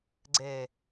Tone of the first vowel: low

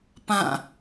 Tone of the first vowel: falling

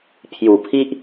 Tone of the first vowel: low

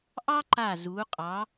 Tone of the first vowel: high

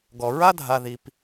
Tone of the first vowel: low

